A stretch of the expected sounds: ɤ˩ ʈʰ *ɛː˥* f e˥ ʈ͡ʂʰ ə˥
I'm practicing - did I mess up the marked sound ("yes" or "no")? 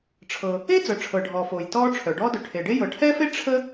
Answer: no